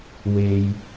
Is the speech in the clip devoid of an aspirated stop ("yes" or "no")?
yes